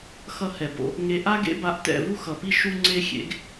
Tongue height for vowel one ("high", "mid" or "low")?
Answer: mid